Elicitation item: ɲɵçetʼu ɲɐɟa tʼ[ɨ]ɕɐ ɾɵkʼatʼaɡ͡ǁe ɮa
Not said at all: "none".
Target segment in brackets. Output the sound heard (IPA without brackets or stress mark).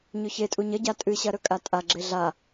ɨ